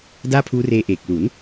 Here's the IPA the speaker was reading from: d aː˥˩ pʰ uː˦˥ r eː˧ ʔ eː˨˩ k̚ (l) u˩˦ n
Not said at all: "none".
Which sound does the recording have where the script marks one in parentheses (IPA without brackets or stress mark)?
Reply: l